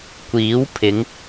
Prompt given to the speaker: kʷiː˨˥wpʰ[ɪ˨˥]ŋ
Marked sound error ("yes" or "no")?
yes